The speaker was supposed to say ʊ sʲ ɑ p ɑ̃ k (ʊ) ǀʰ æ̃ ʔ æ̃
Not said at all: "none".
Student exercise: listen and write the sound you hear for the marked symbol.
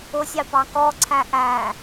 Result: ɔ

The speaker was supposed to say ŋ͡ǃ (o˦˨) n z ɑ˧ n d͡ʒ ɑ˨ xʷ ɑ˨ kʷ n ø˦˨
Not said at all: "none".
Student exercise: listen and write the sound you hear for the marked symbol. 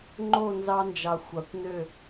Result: o˦˨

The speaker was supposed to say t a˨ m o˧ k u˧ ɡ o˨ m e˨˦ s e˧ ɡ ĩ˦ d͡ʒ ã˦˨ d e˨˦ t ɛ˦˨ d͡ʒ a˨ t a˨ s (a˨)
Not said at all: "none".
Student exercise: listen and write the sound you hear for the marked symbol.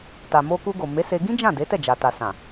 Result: ã˨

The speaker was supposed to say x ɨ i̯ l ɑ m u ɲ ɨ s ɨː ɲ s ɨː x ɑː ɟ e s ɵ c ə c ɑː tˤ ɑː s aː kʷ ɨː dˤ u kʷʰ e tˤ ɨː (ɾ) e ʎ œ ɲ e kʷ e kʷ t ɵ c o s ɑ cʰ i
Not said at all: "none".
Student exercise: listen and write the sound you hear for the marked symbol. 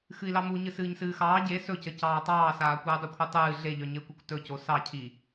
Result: ɮ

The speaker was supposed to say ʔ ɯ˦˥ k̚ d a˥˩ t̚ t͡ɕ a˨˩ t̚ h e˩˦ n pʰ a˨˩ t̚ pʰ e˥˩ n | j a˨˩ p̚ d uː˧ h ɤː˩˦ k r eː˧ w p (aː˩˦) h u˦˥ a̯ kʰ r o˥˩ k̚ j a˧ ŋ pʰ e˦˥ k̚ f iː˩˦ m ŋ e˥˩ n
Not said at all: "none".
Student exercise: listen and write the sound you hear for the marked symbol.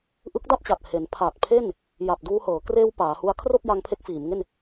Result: aː˩˦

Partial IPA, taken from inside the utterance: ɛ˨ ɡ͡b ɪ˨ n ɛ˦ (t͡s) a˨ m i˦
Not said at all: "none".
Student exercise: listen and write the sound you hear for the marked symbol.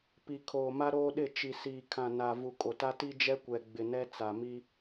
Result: t͡s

